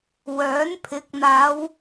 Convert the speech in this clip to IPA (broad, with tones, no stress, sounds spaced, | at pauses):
w œː˨˥ n pʰ ɪ˨˥ k̚ n̪ aː˨˧ w